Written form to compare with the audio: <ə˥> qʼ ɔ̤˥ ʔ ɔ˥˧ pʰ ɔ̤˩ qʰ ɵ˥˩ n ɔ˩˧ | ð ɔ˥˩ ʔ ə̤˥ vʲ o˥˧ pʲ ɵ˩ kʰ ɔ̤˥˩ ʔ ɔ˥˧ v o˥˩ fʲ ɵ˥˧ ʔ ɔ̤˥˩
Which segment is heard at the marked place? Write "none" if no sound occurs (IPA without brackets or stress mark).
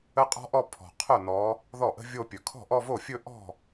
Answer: ə˥